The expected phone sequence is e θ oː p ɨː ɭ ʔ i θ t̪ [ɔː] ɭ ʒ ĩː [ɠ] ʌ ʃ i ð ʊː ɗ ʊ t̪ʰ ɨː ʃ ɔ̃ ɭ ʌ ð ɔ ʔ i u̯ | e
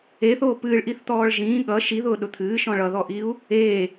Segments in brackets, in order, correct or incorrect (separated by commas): correct, correct